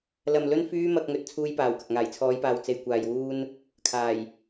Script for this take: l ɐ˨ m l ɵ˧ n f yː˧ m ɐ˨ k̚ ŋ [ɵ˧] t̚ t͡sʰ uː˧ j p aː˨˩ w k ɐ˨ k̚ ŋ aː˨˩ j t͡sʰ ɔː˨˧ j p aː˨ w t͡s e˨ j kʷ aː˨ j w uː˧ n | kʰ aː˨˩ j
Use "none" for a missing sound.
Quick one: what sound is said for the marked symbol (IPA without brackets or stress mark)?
ɵ˨